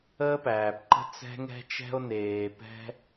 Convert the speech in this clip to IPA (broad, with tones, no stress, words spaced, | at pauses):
əː˦pæː˨pǃə̤˦ t͡sɛ̤˦ŋɛ̤˦t͡ʃɛ̤˦o̯neː˨ pɛ̤˦